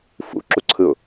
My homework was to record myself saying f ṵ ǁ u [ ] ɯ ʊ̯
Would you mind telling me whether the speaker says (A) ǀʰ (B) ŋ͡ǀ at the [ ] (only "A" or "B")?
A